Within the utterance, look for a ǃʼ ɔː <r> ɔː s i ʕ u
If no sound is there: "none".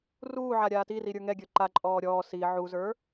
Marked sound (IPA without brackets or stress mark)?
ɾʲ